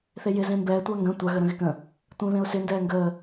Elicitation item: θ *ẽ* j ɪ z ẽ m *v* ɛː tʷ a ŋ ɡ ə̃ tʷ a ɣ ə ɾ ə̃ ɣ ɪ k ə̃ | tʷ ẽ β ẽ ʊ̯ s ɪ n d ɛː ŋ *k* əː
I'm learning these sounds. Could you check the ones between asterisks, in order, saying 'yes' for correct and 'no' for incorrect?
no, no, no

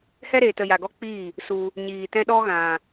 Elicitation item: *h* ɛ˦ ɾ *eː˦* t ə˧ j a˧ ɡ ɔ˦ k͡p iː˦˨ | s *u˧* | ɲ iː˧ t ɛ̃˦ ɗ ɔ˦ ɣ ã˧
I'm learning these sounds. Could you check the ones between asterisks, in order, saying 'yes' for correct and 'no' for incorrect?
yes, no, yes

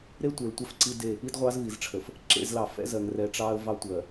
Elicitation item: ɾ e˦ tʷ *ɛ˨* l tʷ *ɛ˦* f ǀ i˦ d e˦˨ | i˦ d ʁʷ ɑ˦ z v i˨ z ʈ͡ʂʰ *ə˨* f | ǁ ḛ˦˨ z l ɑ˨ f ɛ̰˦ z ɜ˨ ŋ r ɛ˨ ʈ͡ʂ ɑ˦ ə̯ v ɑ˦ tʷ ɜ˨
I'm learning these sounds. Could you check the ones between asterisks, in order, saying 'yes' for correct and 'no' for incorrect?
no, yes, yes

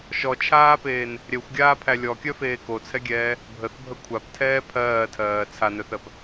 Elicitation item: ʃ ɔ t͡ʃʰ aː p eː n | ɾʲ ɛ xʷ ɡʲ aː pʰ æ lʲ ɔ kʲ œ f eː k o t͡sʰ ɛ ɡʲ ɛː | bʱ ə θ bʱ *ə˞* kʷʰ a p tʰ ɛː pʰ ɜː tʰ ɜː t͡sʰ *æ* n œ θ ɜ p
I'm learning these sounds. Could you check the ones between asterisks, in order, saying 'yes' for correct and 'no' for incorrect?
no, no

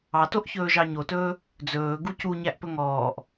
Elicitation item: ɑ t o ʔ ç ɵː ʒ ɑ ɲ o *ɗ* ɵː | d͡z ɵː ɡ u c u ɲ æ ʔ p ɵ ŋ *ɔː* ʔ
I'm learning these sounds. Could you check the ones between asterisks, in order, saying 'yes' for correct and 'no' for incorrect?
no, yes

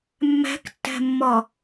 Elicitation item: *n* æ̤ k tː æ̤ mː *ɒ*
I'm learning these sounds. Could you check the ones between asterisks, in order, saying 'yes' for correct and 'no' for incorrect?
no, yes

